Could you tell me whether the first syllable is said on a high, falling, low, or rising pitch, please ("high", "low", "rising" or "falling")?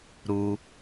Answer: high